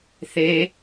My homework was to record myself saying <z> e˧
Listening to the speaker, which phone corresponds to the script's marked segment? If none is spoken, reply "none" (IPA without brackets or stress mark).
θ